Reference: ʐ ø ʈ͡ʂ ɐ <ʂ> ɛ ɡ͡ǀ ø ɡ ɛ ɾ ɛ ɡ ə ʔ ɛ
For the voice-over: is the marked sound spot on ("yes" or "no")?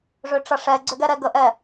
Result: yes